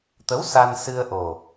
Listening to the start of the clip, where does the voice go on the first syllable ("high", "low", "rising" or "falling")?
rising